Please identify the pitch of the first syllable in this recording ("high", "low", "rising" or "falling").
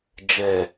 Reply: low